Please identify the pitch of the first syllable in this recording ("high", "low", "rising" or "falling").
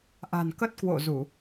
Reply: low